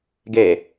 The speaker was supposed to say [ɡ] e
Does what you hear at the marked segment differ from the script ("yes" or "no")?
no